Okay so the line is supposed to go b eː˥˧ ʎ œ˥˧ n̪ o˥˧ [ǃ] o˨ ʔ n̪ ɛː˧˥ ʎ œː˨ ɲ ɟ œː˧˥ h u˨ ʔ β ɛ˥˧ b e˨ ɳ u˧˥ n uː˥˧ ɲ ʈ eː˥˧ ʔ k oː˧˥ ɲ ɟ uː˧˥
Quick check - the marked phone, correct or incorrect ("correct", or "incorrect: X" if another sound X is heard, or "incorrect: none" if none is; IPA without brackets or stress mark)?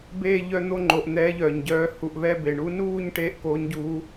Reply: incorrect: ŋ͡ǃ